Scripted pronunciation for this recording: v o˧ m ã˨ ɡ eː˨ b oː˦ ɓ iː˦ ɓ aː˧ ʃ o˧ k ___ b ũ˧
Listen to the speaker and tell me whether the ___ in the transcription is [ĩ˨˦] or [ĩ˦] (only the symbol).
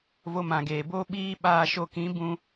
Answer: ĩ˨˦